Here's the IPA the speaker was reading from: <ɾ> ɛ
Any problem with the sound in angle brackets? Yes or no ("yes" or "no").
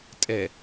yes